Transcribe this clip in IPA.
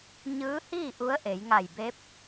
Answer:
ɲ ɯː˧˥ h iː˥˨ ʔ u˧˥ ə̯ ʔ e˩˧ j ŋ a˧˩ j b e˧˥ p̚

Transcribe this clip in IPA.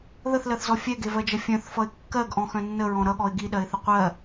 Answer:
ð ə θ l ɜ θ z ɔ fʲ ɛ ɡ e v ɜ d͡ʒ ʌ fʲ œ̃ θ f ʌ ɪ̯ kː ɜ ɡ ʔ ɔ̃ x œ̃ nː ə ɹ ɔ̃ ɾ ʌ ɠ ɔ ɪ̯ ɡ i ɗ ɜ ɪ̯ θ ə qʷ ɜ

